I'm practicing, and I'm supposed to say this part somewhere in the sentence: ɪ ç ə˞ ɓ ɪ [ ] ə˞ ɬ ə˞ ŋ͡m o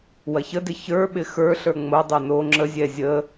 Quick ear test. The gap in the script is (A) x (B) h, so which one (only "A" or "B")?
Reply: A